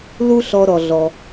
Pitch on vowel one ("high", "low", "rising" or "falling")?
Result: high